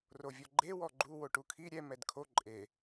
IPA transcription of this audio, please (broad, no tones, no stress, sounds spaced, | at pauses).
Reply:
r o vʲ ɔ ɡ͡ǃ e w ɔ ɡ͡ǃ u w o ʈ u kʰ i ɾʲ ɛ m ɛ d kʰ o ǃʼ e